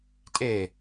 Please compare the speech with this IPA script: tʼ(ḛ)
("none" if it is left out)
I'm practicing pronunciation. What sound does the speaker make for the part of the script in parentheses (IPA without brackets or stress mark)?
e